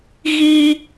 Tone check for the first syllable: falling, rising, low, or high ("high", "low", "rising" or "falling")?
high